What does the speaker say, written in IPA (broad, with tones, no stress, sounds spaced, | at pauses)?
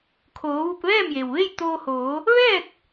kʰ oː˩˧ ʋ u˧ p̚ ʋ ɛː˥˨ m j e˩ w ʋ e˥˨ j t̪ oː˧ h oː˩˧ | ʋ ɛː˥˨ k̚